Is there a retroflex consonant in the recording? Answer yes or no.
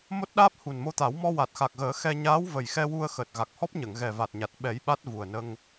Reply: no